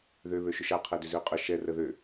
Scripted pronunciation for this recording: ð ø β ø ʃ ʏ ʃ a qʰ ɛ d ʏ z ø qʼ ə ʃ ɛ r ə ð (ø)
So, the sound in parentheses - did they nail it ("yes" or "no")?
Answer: yes